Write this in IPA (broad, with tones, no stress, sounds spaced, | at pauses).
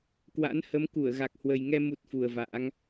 k w a̰˧˥ n h ə˨˦ m k u˧˩ ə̯ ɣ a˨˩ k̚ h w ə˨˩ j ŋ ɛ˧ m u˦˥ t̚ f u˨˩ ə̯ v a̰ː˧˥ ŋ